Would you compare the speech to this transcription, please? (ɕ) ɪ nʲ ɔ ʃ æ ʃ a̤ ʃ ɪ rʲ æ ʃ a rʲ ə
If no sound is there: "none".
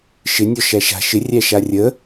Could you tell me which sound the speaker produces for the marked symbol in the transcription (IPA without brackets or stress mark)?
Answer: ʃ